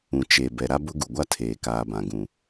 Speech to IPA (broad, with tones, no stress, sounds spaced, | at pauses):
ũ˨ t͡ʃ e˨ b ɛ˦ ɾ a˦ b ʊ˦ ɡ u˨ ɡʷ a˦ tʰ eː˨ k aː˨ b ã˨ ɡ ũ˨